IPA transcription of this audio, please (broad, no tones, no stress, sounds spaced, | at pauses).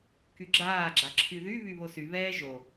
k y ɡ͡ǁ aː ɡ͡ǁ a ǁʰ y ð y β y β o s y β ɛː ʒ o